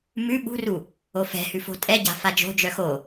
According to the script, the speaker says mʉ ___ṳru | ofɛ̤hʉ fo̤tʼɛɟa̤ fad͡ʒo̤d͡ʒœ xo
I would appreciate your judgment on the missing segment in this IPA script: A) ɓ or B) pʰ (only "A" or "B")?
A